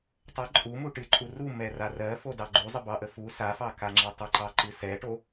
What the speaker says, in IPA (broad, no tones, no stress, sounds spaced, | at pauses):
tˤ ə ǃʼ u m u ʈ ɨ ǃʼ u r u m ɛ r a r ɜ f o d ɑ ɡ͡ǃ u zˤ ə b ɑ ʔ ə f u s a f ɑ k a ŋ͡ǁ ɜ tˤ ə ǃ ɑ ǃ ɨ s ɛ ʈ o